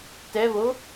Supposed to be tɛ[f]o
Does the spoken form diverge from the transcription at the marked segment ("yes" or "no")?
yes